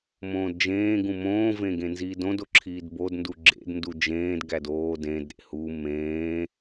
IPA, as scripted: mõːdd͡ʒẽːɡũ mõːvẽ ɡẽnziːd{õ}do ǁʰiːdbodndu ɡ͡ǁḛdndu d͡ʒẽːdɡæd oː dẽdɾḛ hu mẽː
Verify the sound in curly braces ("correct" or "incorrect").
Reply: correct